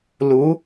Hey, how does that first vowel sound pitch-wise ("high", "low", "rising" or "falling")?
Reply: rising